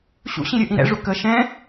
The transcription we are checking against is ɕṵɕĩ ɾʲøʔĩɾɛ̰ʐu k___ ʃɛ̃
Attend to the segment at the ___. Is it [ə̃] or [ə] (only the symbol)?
ə